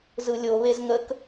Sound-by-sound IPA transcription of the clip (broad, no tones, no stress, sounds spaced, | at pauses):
z ɯ lʲ o β e z ŋ ə k